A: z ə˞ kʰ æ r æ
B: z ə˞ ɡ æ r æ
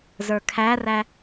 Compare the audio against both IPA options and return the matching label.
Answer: A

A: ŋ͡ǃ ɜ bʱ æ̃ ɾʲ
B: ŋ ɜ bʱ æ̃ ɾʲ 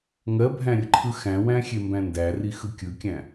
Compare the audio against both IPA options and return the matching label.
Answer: B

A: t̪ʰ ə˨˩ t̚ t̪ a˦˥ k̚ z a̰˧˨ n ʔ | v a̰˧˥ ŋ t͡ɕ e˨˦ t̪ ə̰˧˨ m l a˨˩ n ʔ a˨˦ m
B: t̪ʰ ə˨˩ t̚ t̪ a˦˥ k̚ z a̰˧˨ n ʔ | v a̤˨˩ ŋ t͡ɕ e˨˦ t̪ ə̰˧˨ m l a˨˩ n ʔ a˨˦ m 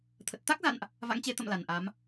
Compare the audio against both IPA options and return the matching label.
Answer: A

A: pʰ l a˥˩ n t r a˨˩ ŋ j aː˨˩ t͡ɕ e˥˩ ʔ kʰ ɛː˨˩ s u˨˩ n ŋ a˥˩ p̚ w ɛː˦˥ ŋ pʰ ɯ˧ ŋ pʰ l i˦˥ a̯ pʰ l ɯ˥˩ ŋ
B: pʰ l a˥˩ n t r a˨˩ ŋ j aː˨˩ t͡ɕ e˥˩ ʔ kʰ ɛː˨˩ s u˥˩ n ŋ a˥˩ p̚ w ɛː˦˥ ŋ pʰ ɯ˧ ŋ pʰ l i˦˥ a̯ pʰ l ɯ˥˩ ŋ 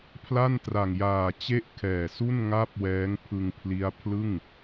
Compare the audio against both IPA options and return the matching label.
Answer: B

